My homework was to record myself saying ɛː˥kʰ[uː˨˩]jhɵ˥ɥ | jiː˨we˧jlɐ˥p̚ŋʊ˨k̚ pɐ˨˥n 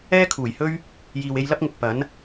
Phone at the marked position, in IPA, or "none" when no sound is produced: uː˨˩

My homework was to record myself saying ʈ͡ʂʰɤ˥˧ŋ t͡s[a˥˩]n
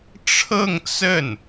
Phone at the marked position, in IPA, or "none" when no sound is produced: ə˥˩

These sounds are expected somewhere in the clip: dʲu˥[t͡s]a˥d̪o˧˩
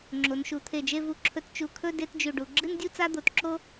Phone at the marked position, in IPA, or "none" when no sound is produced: t͡s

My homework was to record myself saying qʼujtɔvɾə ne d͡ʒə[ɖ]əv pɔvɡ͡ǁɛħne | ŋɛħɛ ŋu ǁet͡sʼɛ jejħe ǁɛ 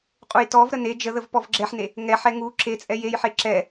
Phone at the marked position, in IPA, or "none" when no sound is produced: ð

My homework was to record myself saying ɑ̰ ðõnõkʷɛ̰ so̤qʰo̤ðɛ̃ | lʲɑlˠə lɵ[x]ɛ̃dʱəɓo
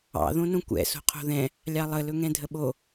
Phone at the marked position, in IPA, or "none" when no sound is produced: ŋ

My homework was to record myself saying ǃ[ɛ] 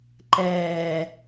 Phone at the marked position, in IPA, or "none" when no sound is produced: ɛː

